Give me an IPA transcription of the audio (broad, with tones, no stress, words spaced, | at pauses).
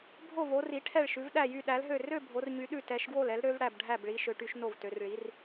bʱo˥˨vo˧˥ ri˧˥ʈʰɛ˥˨ɭʃʉ˧˥v ɗæ˥˨jy˥˨ɗæ˧˥lɦø˥˨ rø˥˨ bʱo˧˥rɲy˧˥ɗʉ˥˨ tɛ˧˥ʃɡwo˥˨lɛ˧˥l ɾø˧˥vɽæ˥˨bɖʱæ˥˨bɭi˧˥ ʃø˧˥ʈy˧˥ʃno˥˨vtø˧˥r ɭi˧˥r